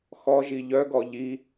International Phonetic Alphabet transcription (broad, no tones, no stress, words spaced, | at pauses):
xɔʒi ʎœɡɔ ʎi